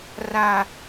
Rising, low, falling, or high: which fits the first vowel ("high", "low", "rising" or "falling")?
high